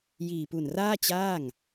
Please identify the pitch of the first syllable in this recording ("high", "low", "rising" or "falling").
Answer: low